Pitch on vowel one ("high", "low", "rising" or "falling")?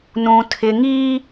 high